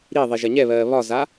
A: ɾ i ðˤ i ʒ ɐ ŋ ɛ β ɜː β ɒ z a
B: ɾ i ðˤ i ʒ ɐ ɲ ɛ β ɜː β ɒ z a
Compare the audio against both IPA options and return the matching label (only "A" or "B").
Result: B